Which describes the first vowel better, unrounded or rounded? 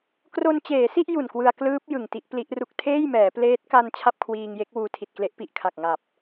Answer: rounded